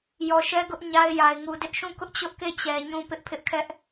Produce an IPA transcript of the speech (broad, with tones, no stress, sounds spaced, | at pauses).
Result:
j ɔ˨ ʃ ɛ˦ ɡ ʊ˦ ʔ ɲ a˦ ɪ̯ j a˨ ɪ̯ ŋ u˨ d ɪ˦ ʔ ʃ ũ˦˨ k ʊ˦ ʔ t͡ɕ ʊ˦ ʔ k e˦˨ t͡ɕ ɛ˨ ɲ ũ˦ p ɪ˦ ʔ pʰ ɪ˦ ʔ kʰ ɛ˦ ʔ